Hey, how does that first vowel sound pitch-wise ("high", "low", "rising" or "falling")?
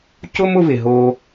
high